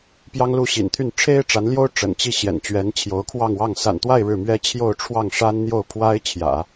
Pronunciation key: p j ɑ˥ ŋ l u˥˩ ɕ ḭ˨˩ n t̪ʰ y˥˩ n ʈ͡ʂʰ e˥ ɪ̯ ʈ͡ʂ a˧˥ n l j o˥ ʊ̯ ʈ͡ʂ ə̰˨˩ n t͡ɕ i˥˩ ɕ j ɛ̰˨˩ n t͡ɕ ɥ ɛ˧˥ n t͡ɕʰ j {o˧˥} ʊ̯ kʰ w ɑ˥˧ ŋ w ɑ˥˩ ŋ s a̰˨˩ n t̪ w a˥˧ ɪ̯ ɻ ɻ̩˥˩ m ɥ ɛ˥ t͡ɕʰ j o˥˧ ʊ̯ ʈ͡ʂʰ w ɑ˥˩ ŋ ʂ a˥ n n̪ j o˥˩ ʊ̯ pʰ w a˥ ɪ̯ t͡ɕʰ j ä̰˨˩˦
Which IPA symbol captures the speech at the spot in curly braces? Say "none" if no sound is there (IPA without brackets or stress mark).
o˧˥